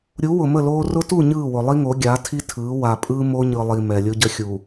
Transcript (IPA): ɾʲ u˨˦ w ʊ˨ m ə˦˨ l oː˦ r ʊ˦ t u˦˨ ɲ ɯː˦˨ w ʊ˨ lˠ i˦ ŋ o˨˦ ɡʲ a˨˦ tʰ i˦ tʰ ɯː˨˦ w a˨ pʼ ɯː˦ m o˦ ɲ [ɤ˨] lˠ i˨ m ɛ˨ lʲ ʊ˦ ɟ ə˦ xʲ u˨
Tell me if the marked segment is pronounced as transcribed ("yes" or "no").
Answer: no